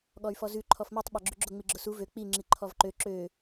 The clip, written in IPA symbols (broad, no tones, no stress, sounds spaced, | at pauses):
ɠ ɔ y̯ f ɔ z ʉ ǃʰ ɔ f m i tˤ ɓ ɔ ɡ͡ǁ ʉ ɡ͡ǁ ʊ ŋ͡m i ɡ͡ǁ ʊ s u v ø k͡p i ŋ͡ǁ i ǃʰ ɔ v ǃ ø ǁ ø